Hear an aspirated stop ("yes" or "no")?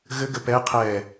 yes